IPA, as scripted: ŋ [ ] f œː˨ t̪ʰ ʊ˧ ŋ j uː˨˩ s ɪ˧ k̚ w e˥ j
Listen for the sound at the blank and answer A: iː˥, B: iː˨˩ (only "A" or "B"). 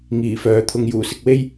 B